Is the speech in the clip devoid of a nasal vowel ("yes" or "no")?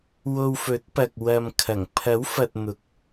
yes